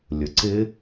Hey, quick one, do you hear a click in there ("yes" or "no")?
yes